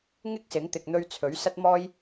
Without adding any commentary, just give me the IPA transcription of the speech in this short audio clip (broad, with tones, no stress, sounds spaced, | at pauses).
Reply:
ŋ ɪ˥ k̚ s ɪ˨˥ ŋ t̪ ɪ˨ k̚ n̪ ɵ˧ ɥ t͡sʰ ɵ˨˥ ɥ s ɐ˥ t̚ m ɔː˥ j